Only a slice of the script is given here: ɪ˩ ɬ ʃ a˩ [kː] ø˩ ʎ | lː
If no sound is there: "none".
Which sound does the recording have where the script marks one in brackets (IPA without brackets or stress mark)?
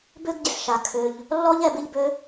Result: kʰ